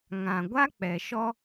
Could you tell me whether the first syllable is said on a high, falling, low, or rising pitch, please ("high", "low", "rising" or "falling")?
low